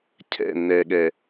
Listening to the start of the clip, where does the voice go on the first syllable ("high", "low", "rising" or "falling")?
falling